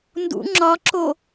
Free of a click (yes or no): no